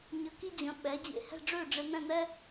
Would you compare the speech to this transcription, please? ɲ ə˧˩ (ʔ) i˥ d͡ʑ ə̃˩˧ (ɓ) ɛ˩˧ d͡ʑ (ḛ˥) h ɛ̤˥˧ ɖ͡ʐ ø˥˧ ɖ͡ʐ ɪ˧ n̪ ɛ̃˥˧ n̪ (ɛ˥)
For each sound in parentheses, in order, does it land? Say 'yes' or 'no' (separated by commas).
no, yes, no, yes